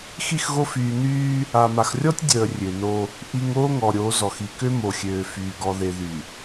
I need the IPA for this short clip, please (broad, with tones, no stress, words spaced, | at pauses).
xi˦˨xɣo˦ fyː˨ nyː˦ | a˨ma˨xrʲɔ˦tʲ dʲəː˨rʲø˨no˦ | ʔi˨ŋ oː˦ŋɔ˨ɾʲo˨˦ zɔ˨xi˨ kø˦mo˨xʲøː˨fyː˨ ɡɔ˨ðe˨ ðy˨